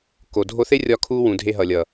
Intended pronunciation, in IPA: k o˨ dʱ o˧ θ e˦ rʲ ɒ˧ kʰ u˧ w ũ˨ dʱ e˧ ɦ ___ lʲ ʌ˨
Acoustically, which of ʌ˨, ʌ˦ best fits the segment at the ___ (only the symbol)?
ʌ˨